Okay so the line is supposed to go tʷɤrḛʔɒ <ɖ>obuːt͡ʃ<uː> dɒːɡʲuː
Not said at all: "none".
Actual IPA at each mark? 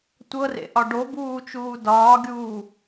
ɖ, uː

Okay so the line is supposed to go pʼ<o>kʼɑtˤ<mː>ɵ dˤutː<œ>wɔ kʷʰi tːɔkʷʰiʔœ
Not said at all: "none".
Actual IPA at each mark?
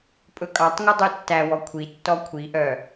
ɵ, ŋ, æ

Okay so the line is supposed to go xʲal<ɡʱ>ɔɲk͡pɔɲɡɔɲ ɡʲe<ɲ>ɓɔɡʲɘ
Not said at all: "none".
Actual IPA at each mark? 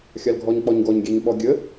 ɡʱ, ɲ

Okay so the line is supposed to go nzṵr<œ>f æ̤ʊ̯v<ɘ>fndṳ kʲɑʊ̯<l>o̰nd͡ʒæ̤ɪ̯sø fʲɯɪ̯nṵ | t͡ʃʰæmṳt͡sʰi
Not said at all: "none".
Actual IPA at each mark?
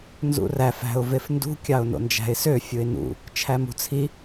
æ, e, n

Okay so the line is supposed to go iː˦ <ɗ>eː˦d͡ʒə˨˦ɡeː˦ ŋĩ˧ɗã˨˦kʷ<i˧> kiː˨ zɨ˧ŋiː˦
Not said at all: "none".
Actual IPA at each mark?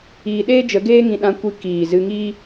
ɗ, i˧

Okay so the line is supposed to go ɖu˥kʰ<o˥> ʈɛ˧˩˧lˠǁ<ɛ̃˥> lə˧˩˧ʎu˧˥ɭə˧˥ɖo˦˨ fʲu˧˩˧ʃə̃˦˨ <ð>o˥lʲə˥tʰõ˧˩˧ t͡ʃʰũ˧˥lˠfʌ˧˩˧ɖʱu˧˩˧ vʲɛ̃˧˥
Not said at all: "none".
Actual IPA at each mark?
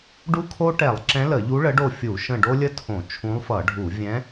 o˥, ɛ̃˧˥, ɖ

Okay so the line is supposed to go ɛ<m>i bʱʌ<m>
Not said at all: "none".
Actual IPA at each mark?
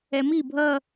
m, none

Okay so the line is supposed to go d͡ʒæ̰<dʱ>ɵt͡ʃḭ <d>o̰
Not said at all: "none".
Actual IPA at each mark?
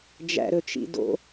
ɾ, d

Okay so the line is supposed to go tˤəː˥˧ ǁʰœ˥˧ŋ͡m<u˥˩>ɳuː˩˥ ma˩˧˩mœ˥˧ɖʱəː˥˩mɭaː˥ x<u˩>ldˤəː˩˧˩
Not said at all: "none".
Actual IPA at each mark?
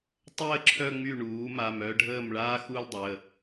y˥˩, u˥˧

